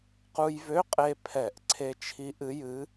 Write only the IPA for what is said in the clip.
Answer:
qu˧jvø˧˥˧qʼe˧pʰɛ˧˩˧ʔ ǀʰe˧t͡ʃʰi˧˥ʔɨ˧˥jɨ˧˥

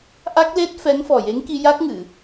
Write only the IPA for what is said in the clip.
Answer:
ʔa˦˥k̚le˦˥t̚ fɛ˧˥ŋfɔ˨˩je˧˥ŋki˧ ja˦˥k̚ ŋɨ˨˩˨

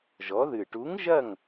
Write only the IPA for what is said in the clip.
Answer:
ʒɔ˩˧ðɨ˨˩ʈu˨˥ŋ ʒɐ˥˨ŋ

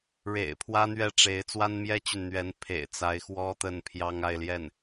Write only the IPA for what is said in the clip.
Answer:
ɻḛ˨˩ɪ̯ pʰwä˥n̪ɥɛ˥˩ʈ͡ʂe˧˥ɪ̯ t͡swa˥nmjɛ˥t͡ɕy˨n n̪ɥɛ˧˥n pʰḛ˨˩ɪ̯t͡sa˧˥ɪ̯ xwɔ˥t̪ə˥˩npʰjɑ˥ŋ a˥˧ɪ̯ljɛ˥˩n

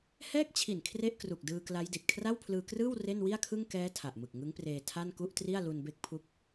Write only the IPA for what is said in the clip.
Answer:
hɛː˥˩k̚t͡ɕʰi˨˩n kʰre˥˩ʔkru˨˩k̚dɯː˧ kla˦˥jdi˨˩t̚ kʰra˥˩wpʰlɯː˧krɯː˥˩w re˥˩nwi˥˩a̯kʰɯ˥˩ŋ kɛː˦˥ tʰa˨˩ʔmɯ˨˩k̚ŋɯ˦˥ŋpreː˧ tʰa˥˩n ku˥˩ʔtri˥˩a̯ lu˧nbe˦˥k̚ pʰu˥˩k̚

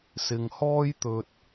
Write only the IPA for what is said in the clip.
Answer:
sɪ˨ŋhɔː˥j t̪ɵ˧t̚

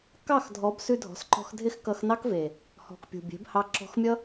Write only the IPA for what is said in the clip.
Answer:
kɑ˦˨x dʱɔ˨˦bsʉ˧dʱɔ̤˨sǃɔ̤˧x dʱɪ˦xkʌ˧xnɑ˦kve˨ | hɔ̤˨k pʲṳ˨bʲe̤˨˦bhɑ˧ ǁɔ̤˧xmʲʌ˦

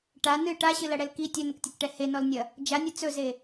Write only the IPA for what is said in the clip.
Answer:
ʈa nɨ ʈaɕɨlɐɽɛl ki tʲɵnəktʲɐkʈɛ henɔlnʲɐ | d͡ʒanʲɨ t͡sɵze

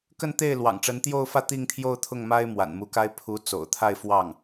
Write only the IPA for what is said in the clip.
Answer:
kə˥˧nt̪e˥˩ɪ̯ lwɑ̰˨˩ŋʈ͡ʂə˧˥nt̪jo˥˧ʊ̯fä˥˧ t̪i˥˧ŋt̪ʰjo˥˧ʊ̯t̪ʰʊ˥˩ŋ ma˥ɪ̯ mwa̰˨˩nmu˧˥ka˥ɪ̯ pʰu˧˥ t͡so̰˨˩ʊ̯t̪ʰa˥˧ɪ̯fwɑ˥˩ŋ

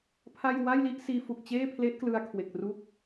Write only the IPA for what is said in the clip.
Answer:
pʰa˥˩j wa˥˩jli˥˩ʔsiː˧fu˨˩k̚ t͡ɕeː˥˩pʰle˦˥ʔklɯ˧a̯ kʰwe˨˩k̚ruː˥˩k̚

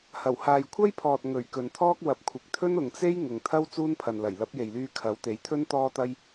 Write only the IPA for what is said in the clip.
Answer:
hɐ˨˩whaː˨jkʷʰɐ˥jpʰɔː˨t̚ ŋɵ˨˩ɥ kɵ˨nt̪ʰɔː˥k̚ wɐ˨˥p̚kʷʰɪ˨k̚t̪ʰɵ˥n ʊ˨ŋt͡se˥j ŋʊ˨ŋt̪ʰɐ˥w t͡suː˥npʰɐ˨nlɐ˨˩j lɐ˨˥p̚je˨jlyː˧ kʰɐ˨˥wt̪e˨˥jt̪ʰɵ˥n t̪ɔː˥t̪ɐ˥j

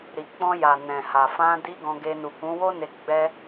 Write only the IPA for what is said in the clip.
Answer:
ɾi˨ k͡pɔ̃˧ja˨ nɛ̃˨ha˨ fã˧di˧ ɡɔ̃˧ɡe˧ nu˨kũ˨˦wo˦ne˧ ɡ͡bɛ˧

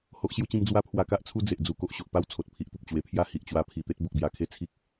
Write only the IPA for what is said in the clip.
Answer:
ho˦ʔɕju˦t͡ɕĩ˦m d͡zwa˦pʰwa˧ka˦ʔt͡sʰu˦ d͡ze˨ʔd͡zu˧ ko˨ʔɕo˨ʔpa˦w t͡sʰo˨t̚pʰi˨ʔt̪ə˨p̚ t͡ɕwe˨˩pʰja˥˧ hi˨ʔt͡ɕwa˧ pʰi˨˩t̪e˦t̚ bo˨k̚bja˧kʰe˥˧ t͡sʰi˦k̚

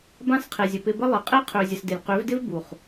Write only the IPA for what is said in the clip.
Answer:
bã˦˨sqʰe˨zʲə˨ pɪ˧bə˦ lˠɪ˨qʼe˦ qʰø˨zʲə˨sdɪ˨lʲ qø˨˦vdɪ˦v bu˨χ

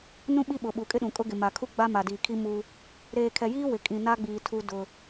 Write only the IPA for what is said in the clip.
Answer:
nũ˦ɓi˦ɓʊ˨ ɓu˨kʼɪ˦ɗũ˨kʼʊ˦ ɡɪ˨ ma˨kʰu˦ɡ͡ba˦ ma˨diː˨ kʰi˦ mu˦ | ɾeː˨kʰɛ˨jiː˦ wɪ˨kʼĩ˨na˦ɡ͡biː˨ tʰu˦dʊ˦

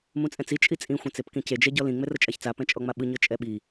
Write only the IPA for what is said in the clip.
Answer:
mũt͡sʼɛ̃t͡si t͡ʃʼit͡sʼĩ xʷɛ̃t͡sepkĩce d͡ʒɛɟɔlĩ ŋ͡mɛrɤt͡ʃʼaçt͡sa pɛ̃t͡ʃʼɔŋ͡maɓɯ ɲɤt͡ʃʼɛɓi

